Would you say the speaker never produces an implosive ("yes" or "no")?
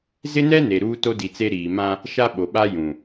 no